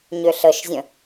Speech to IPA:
ɲ ʏ ɬ ə ʃ zʲ ə̃

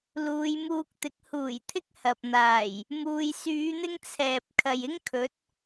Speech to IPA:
l uː˨˧ j m uː˧ k̚ t̪ ɪ˨˥ k̚ h uː˨˩ j t̪ʰ ɪ˥ k̚ h ɐ˨ p̚ n̪ aː˨˩ j | m uː˧ j s yː˨˧ n̪ ɪ˧ ŋ t͡sʰ ɛː˨ p̚ kʰ ɐ˨ j ɪ˥ ŋ kʰ ɵ˨˥ t̚

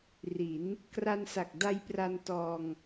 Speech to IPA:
r i˩˦ n | k r a˧ n s a˨˩ k̚ d a˧ j p r a˧ n t ɔː˧ ŋ

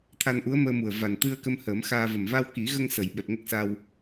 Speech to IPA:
t̪ʰ a˧ n ʔ u˧˥ ə̯ m əː˧ m u˨˩ ə̯ v a˨˩ n t̪ ɨ˧ ə̯ k ə˧ m h əː˨˩˦ m x aː˧ v ə˨˩ m v a˧ w k i˨˩˦ ɣ ə˧ ŋ s ə˨˩˨ j ɓ ɛ˨˩ p̚ ŋ ə˦˥ k̚ s a˧ w

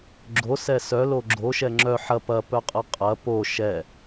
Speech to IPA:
ɡ͡ǁ o s ɛ s œ l o ɡ͡ǁ o ʃ ɛ ŋ͡ǁ œ ħ ɐ p ɐ p œ qʼ ɐ qʼ ɐ p o ʃ ɛ

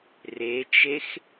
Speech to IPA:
r e t͡ʃ e x

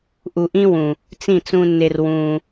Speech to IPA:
ʔ u˨ ʔ ĩ˦ w ũ˨ | t͡s ĩ˦˨ t͡s ũ˧ nː e˧ r w ũː˧

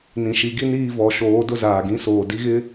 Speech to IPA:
n ĩ˨ ʃ i˨˦ ɡ i˦ n iː˦˨ v ɔ˨ ʃ oː˨˦ d ʊ˦ z aː˨ ɡ ĩ˦ s oː˨ d i˦ ɣ ɪ˦

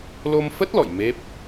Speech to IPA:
l o˧ m f ə˦˥ t̚ l ɔ̰˧˨ j m e˦˥ p̚

